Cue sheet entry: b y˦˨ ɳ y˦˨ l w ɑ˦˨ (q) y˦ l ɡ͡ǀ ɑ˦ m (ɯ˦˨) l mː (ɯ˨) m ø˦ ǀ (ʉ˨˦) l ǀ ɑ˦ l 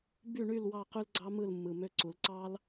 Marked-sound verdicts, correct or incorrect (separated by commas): correct, correct, correct, incorrect